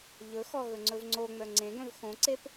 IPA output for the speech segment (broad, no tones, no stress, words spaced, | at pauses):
ʎɵxɔ ɣɵŋ͡ǀɵvŋ͡ǀoŋ͡mœ ŋ͡ǀẽɡœ̃v xõǀep